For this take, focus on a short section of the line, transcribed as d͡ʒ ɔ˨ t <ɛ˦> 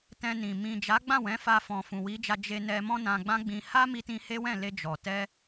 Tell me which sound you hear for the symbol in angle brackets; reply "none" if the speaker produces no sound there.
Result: ɛ˧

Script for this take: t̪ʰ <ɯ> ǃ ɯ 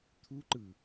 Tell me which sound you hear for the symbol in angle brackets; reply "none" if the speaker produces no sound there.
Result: u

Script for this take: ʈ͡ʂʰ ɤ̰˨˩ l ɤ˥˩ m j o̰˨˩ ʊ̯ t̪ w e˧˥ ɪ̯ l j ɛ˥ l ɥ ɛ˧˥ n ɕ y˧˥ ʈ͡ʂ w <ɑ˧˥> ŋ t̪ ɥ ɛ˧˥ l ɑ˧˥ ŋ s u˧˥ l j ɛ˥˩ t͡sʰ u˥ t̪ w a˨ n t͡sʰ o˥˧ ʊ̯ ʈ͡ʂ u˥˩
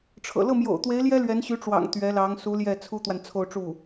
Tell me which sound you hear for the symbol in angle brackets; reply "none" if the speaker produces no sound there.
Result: ɑ̰˨˩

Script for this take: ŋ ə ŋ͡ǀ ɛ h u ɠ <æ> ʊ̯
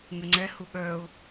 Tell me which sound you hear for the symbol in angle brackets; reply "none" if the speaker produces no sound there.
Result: œ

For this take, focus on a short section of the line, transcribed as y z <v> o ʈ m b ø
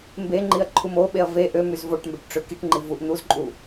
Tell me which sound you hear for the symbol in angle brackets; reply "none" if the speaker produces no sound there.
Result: v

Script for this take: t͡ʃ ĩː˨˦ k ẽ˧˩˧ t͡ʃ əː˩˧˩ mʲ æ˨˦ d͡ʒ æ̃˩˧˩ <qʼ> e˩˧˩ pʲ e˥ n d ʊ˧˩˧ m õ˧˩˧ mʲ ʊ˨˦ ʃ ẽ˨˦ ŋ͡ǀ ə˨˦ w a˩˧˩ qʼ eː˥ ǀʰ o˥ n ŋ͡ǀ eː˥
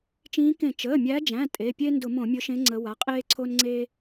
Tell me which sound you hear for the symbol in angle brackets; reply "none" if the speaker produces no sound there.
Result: tʼ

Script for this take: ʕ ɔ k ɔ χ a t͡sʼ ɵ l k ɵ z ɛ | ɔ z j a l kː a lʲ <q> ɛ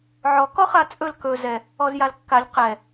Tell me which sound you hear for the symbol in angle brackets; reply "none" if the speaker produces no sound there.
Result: q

